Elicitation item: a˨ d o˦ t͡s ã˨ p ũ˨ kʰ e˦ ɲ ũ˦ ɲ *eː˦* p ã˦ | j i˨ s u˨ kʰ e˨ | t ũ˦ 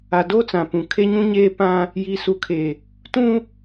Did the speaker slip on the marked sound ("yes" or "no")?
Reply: no